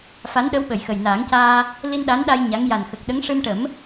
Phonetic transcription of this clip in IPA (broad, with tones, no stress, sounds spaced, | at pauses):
f a˧˥ n ɗ ə˧˥ w ɓ ə˨˩˨ j x ə˨˩ j n aː˨˩˦ ŋ c aː˧ | l i˧ n ɗ a˧˥ n ɗ a˧ j ɲ a˧˥ ŋ j a˨˩ n x ə˨˩ k̚ ɗ ə˧˥ ŋ ʂ ɨ˧ m ʈ ə˨˩˦ m